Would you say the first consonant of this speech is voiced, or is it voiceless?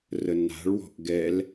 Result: voiced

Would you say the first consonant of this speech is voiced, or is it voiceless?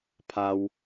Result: voiceless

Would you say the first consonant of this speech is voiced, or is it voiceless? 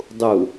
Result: voiced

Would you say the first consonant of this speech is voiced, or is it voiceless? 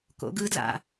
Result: voiceless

